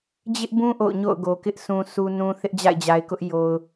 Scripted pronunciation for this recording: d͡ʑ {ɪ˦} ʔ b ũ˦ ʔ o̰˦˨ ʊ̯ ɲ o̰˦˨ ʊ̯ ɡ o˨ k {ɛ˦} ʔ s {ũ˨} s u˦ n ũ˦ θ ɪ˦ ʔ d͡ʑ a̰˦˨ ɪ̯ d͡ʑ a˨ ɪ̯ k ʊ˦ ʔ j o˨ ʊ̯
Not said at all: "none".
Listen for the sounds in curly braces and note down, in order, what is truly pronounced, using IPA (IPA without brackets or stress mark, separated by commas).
ɪ˦, ɪ˦, ũ˨